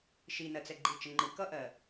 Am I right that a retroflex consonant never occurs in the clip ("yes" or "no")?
yes